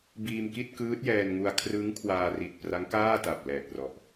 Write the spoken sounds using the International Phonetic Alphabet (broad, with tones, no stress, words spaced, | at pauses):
biː˧m ki˥˩t̚kɯː˦˥t̚jɛː˧nŋu˧a̯ kʰrɯ˦˥ŋ kʰwaː˧ ri˨˩t̚pra˦˥ŋkaː˥˩ta˨˩p̚ lɛː˨˩t̚rɔ˨˩ʔ